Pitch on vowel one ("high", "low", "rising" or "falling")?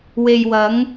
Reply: low